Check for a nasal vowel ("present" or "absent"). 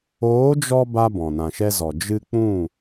present